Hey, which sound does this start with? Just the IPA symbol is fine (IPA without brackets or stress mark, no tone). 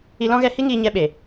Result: i